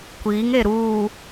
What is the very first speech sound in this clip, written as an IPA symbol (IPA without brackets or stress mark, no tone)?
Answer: kʷ